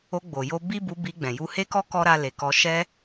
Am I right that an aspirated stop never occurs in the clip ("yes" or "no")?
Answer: yes